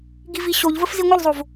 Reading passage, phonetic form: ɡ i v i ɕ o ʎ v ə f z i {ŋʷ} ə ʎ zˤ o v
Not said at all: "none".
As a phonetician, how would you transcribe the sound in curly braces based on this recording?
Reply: ŋʷ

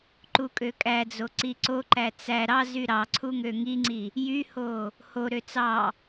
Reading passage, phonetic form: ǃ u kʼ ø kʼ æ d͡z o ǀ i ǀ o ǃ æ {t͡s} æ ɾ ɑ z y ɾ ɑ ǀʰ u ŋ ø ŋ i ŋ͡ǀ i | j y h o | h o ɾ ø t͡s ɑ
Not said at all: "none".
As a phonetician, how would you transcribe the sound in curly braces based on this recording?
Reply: t͡s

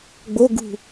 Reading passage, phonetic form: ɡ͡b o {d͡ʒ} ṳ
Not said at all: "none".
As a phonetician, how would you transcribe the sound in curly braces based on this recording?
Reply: ɡ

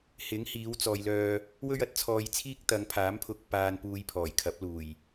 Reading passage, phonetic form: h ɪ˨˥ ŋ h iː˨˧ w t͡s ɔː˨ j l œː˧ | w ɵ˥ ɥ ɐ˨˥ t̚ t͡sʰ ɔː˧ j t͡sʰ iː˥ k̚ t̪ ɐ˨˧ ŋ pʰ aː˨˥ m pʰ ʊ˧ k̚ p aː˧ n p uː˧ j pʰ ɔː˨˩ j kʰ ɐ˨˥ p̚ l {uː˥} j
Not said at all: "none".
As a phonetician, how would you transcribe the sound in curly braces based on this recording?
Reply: uː˨˩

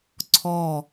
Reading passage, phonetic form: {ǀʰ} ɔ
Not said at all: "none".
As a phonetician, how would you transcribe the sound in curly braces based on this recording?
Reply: ǀʰ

